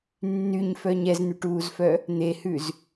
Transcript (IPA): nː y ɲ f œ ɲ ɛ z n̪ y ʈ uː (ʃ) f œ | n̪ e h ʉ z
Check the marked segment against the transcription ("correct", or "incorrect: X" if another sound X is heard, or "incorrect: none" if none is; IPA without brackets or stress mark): incorrect: z